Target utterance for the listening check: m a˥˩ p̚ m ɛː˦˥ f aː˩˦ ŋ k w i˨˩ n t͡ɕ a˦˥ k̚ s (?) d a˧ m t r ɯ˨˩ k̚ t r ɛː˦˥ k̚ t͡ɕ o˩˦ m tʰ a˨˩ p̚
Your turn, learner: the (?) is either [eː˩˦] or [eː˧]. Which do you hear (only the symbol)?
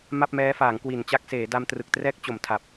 eː˩˦